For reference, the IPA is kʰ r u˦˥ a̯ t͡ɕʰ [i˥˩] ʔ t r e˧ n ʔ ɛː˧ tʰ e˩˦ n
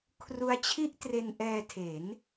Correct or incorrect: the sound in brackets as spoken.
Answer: correct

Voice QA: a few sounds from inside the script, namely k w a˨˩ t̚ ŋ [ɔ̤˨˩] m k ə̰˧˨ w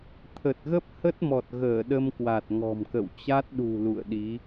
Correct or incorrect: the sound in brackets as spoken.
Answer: correct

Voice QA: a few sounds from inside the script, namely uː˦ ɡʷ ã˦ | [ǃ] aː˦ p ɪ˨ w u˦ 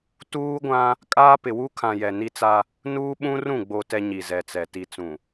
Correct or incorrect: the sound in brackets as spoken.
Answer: incorrect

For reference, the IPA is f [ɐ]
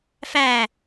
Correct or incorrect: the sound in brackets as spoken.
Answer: incorrect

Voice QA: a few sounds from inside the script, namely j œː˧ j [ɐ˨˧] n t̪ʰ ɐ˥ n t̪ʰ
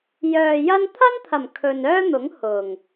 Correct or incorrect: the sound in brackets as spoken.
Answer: incorrect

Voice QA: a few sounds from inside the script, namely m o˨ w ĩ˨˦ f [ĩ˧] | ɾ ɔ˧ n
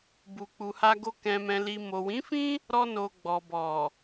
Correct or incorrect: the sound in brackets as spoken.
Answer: incorrect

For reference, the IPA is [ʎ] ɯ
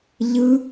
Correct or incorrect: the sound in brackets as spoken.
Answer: correct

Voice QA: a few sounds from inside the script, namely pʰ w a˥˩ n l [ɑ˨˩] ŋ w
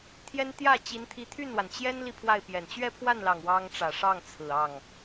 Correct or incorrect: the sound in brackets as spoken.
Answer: correct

